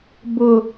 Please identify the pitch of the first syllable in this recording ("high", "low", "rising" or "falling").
low